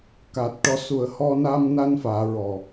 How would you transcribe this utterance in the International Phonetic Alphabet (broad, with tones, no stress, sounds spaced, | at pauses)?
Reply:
k aː˨˩ t̚ ʈ ɔ˧ s u˨˩˦ ə̯ h ɔ˧ n a˧ m n a˧ n f aː˨˩˦ ɹ ɔ˨˩